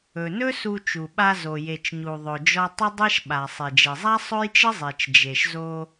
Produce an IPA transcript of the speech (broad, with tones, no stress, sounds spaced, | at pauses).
ɵ˩ n ɵ˥ s u˧ t͡ʃ u˩ ɓ a˧ z o˩ j e˩ t͡ʃ ɲ u˩ ðˤ ɵ˩ d͡ʒ ɔ˧ tˤ ə˥ dˤ e˥ ʃ ɓ a˩ sˤ e˩ d͡ʒ e˩ zˤ a˥ sˤ ɵ˥ j t͡ʃ ə˥ zˤ e˩ t͡ʃ d͡ʒ e˩ ʃ z o˧